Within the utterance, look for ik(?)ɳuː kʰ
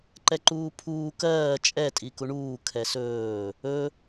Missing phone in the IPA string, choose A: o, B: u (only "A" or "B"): B